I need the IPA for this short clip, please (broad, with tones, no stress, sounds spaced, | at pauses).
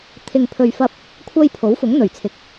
t̪ʰ ɪ˨ ŋ pʰ ɵ˨ ɥ f ɐ˧ p̚ | kʷʰ ɐ˧ j pʰ o˨˥ w f ʊ˨˥ ŋ n̪ ɵ˨˩ ɥ t͡sʰ ɪ˨˥ k̚